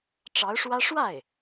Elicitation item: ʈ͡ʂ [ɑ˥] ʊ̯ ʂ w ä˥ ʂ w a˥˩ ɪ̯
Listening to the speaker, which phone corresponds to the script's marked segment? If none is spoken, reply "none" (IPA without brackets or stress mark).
ɑ˧˥